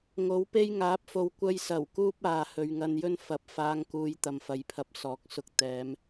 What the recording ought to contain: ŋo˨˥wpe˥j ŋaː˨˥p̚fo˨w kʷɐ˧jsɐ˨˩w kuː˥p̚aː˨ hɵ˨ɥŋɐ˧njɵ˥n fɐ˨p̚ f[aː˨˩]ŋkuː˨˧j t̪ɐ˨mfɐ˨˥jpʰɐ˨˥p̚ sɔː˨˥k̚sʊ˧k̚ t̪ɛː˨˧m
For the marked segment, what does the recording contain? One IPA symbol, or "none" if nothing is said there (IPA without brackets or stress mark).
aː˨˧